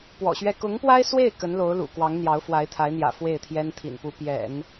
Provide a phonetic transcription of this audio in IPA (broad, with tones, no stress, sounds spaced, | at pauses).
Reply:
p w ɔ̰˨˩ ɕ ɥ ɛ˥˩ k ʊ˧˥ ŋ p w a˥ ɪ̯ s w e˥˩ ɪ̯ k ə˧˥ n l o˧˥ ʊ̯ l ṵ˨˩ k w ɑ˧˥ ŋ n̪ j ɑ˧˥ ʊ̯ f w a˧˥ ɪ̯ t̪ʰ a˧˥ ɪ̯ n̪ j ä̰˨˩ f w e˥˩ ɪ̯ t̪ʰ j ɛ˥ n t̪ʰ ḭ˨˩ n p u˧˥ p j ɛ̰˨˩˦ n